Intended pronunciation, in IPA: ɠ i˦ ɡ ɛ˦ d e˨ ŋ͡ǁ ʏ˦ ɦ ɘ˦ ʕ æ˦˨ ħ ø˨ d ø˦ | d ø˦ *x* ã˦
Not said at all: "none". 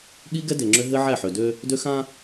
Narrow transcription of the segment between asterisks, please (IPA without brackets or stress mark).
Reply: x